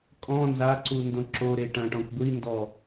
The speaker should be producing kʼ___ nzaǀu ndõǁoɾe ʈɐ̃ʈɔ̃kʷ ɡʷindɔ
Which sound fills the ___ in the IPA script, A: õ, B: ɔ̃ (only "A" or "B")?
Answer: B